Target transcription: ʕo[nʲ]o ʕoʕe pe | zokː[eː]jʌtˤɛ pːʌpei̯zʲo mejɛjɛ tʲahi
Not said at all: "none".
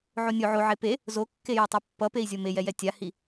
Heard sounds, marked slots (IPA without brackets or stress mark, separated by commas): nʲ, e